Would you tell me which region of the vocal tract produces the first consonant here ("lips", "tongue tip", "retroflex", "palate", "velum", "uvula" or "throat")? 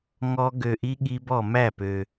velum